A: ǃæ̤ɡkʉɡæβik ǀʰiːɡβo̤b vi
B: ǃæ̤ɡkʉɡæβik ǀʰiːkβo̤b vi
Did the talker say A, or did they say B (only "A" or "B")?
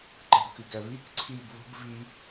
A